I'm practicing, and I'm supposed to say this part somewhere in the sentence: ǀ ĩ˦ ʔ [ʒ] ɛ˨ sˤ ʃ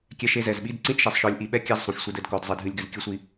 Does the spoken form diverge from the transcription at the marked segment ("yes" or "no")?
yes